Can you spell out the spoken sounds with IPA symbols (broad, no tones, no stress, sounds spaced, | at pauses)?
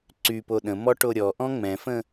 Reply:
ǀ y p o ɗ ə̃ m ɔ ʈ o ɾʲ ɔ ʔ ɔ̃ ŋ͡m ɛ̃ f ə̃